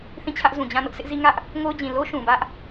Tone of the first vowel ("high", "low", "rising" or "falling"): falling